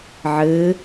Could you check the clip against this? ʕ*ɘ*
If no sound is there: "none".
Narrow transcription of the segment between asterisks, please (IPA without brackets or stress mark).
ɘː